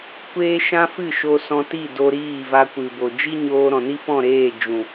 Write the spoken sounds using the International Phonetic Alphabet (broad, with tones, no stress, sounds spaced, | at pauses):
kʷ eː˦ ʃ ã˦ f ɨ˦˨ ʃ o˧ s ɔ̃˧ t i˦˨ d o˧ ɾ iː˦˨ v a˧ kʷ ɨ˨ b o˨ d͡ʒ i˦ ɲ oː˧ ɾ ɔ̃˨ n i˦ f ɔ̃˦˨ ɾ eː˦˨ d͡ʒ ũ˨